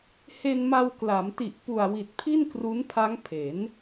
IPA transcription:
h e˧ n m a˧ w k l a˩˦ m t i˨˩ ʔ p u˨˩ a̯ w i˨˩ t̚ pʰ i˥˩ n k r u˦˥ n pʰ a˦˥ ŋ pʰ e˩˦ n

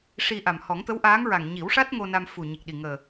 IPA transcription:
ʂ i˧ ʔ a˨˩ m h ɔ˨˩˦ ŋ t̪ ə˧˥ w ʔ aː˧˥ ŋ ɹ a˨˩ ŋ ɲ i˨˩˦ w ʂ a˦˥ t̚ ŋ o˧ n a˧ m f u˨˩ ɲ i˨˩ k̚ ɗ i˨˩ ŋ əː˨˩

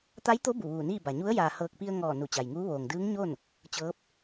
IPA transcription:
t̪ a˧˥ j t̪ o˧˥ b u˧˩ ʋ uː˧˩ n iː˥˨ b a˩ ɲ u˧˥ ə̯ j aː˩ h ɤː˧˩ k̚ p i˧ ə̯ ŋ ɔː˧˩ n u˧˩ t͡ɕ a˩ j ŋ uː˧˥ ʋ oː˩ ŋ d ɯː˧˥ ŋ ɲ o˥˨ n | t͡ɕ ɤː˧˥ p̚

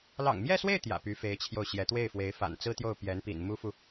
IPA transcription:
l ɑ̰˨˩ ŋ m j ɛ˥˧ s w e˥˩ ɪ̯ t̪ j ä̰˨˩ p y˧˥ f e˧˥ ɪ̯ t͡ɕʰ j o˥˩ ʊ̯ ɕ j ɛ˧˥ t̪ w e˥˩ ɪ̯ f w e˧˥ ɪ̯ f a̰˨˩ n t͡s ɹ̩˥ t̪ j o˥˩ ʊ̯ p j ɛ˧˥ n p ḭ˨˩ n m u˥ f u˨

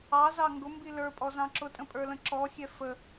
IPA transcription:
ɑ z ɑ ŋ ɡ ʊ m b i l ə˞ pʼ ɔ z ɑ̃ ǁ ʊ tʼ ə̃ pʼ ə˞ l ə̃ ǁ ɔ xʲ ɛ f ə

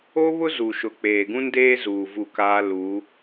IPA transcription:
o˦ β ʊ˦ z u˨ ʃ ʊ˨ k͡p eː˨ ɡ ũ˦ n d eː˦ z uː˨ v u˦˨ k aː˦ l u˨˦

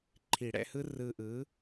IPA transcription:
ǃʰ i˨˩˦ ɽ ɛ̰˧ h ɯ˦˥ r ɯ˧ ʔ ɯ˨˥

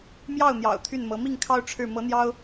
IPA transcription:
m j ɑ˥˩ ʊ̯ n̪ j ɑ̰˨˩ ʊ̯ t̪ʰ y˥˩ n m ɤ˧˥ m i˥˩ ŋ kʰ ɑ˥ ʊ̯ ʈ͡ʂʰ ɻ̩˥˩ m ɤ˧˥ n̪ j ɑ˥ ʊ̯

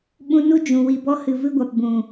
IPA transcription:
ɓ ũ˧ n u˦ d͡ʒ ũ˨ w i˨ b ɔ˧ h ɨ˨ v ɨ˦ ɡʷ a˨ p b ũ˨

